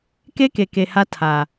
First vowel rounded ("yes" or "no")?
no